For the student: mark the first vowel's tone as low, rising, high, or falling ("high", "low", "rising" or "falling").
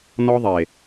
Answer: high